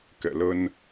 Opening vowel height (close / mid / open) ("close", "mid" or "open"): mid